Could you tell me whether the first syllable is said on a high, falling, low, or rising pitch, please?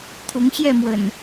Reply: rising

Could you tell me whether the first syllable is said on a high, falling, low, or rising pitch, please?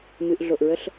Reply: low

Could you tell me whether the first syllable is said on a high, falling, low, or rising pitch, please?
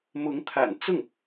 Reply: rising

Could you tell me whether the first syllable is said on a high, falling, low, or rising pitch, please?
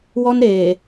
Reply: high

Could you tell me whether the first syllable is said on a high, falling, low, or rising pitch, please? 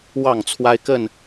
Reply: falling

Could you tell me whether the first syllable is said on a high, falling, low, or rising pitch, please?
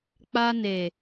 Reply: high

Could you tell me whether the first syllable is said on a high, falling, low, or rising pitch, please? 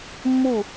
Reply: falling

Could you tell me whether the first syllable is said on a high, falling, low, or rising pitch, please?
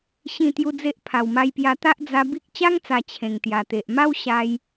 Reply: falling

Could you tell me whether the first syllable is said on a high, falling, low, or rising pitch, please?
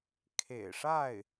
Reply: low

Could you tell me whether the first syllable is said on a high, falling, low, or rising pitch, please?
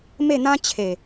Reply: falling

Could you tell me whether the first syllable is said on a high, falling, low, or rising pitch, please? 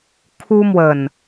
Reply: high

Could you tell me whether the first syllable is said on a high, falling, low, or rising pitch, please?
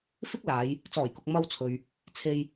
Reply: high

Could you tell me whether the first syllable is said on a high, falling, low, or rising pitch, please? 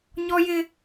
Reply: high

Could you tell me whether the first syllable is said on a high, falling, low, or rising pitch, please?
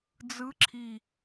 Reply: rising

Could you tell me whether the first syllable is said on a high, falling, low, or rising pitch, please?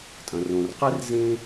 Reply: low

